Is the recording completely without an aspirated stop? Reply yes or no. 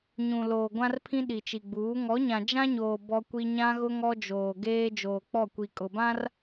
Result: no